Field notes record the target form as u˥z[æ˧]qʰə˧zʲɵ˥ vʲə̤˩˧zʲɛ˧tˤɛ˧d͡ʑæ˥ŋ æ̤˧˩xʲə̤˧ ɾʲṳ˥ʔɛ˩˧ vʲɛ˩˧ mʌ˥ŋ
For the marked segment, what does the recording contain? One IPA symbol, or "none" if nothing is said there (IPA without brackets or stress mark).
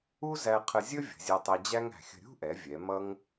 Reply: æ˧